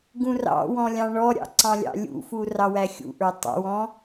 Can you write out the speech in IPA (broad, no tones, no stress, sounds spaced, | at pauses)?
ɡ ũ r ɑ̰ w ɔ̃ lʲ ɑ̃ ɳ ɔ ɾʲ ɑ̰ ǀ ɑ̃ lʲ ɑ̰ lʲ ṵ f u r ɑ w æ xʲ ṵ ʔ ə˞ tˤ ɑ̰ w ɔ̃